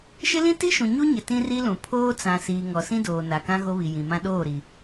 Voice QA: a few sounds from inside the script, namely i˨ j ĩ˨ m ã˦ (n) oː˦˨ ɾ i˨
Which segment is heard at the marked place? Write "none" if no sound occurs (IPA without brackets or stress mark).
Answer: ɗ